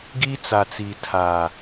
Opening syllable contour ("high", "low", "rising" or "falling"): high